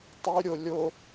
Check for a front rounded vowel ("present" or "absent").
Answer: present